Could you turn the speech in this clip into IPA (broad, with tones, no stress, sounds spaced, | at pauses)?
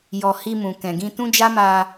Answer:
j ɔ˨ h i˧ m ũ˨ k ɛ̃˨ ɡ ĩ˧ t ũ˦ d͡ʒ a˦ m a˧